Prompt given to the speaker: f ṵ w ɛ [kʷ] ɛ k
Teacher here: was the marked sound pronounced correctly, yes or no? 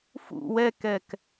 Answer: no